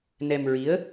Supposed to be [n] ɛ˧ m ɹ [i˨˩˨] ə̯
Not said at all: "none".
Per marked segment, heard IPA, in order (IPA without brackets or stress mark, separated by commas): n, i˧˥